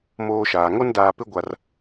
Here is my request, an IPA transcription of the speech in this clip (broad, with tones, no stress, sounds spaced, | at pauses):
m oː˦ ʃ aː˨ ŋ o˦ n d aː˨ p ɪ˦ ɡʷ a˦ r